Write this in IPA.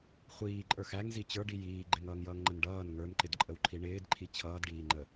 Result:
χʷiːǃʼə˞x æŋzi t͡ɕə˞ɖi jiː ɡ͡ǃɪŋʌːŋjʌːŋŋ͡ǃən ɖʌːn ŋə˞nǃɪdǃʼəwǃʰi ɳɪːdǃʰi t͡ɕʰʌːdɖiːŋ͡ǃə

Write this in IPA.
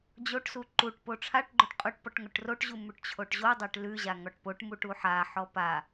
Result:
d͡ʑoʈsu ǃuʈ poʈ͡ʂʰaʈɡ͡ǃoʈ qʼoʈpɔʈ ŋoʈroʈʑu mʉʈt͡ɕʰoʈʑodˤaʈ lʉʑa ŋɔʈpoʈmuʈ uħaħɔ pa

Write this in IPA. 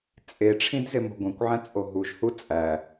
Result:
t͡sʼeʈ͡ʂʰĩd zemo̤ɡʷẽkʷʕæ̃ t͡sʼoɦuʒhu t͡sʼæ

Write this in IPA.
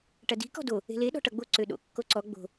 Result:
ʈɐdi̤ kɔ̤do | e̤le ɗɔ̤ʈʌɡ͡bo ǀøɗo̰ kːoǀɔ ɡ͡bo̤

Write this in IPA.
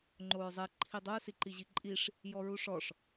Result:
ŋ͡ǃoɹzˤɛ ǃʰidˤoɹ siǃiʑiǃʼiʂ | jɔɹuʂɔʂ

